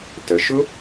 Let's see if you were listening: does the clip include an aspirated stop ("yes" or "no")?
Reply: no